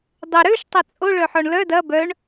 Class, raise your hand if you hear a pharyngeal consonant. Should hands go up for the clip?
yes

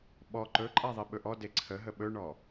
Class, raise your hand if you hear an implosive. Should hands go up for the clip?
yes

